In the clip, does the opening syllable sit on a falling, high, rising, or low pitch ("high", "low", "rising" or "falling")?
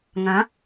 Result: rising